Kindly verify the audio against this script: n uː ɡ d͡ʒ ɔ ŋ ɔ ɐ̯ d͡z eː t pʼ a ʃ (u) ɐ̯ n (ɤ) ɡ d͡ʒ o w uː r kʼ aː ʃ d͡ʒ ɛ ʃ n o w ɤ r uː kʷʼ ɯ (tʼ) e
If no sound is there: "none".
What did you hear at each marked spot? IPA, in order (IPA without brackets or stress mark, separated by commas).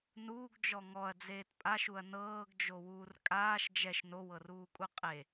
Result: u, ɤː, qʼ